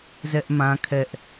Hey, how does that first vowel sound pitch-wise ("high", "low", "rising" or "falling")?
high